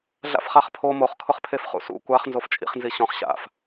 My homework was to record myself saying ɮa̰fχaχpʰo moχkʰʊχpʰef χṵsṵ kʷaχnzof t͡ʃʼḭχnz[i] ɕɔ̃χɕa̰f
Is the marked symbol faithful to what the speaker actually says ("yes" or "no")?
yes